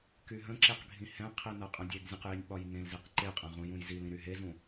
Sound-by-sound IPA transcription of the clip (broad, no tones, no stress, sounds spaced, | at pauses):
k y ɦ ə̃ ǁ e q ɡʱ ĩ h ɛ̃ qʰ i n ɤ qʼ ə̃ dʲ e ɡ zʲ ə̃ q j i nʲ ɓ ɒ j n ẽ l z i q ǃ e qʼ ẽ ʁ ũ j ũ j z i l ĩ ɾ y ɦ e z ũ